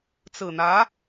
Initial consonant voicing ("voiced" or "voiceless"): voiceless